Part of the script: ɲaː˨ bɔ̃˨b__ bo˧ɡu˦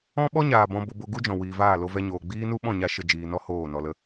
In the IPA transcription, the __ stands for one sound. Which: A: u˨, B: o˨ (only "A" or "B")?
B